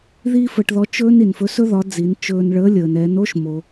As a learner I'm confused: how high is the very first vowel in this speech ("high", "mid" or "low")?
high